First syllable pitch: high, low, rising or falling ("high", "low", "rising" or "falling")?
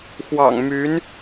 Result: low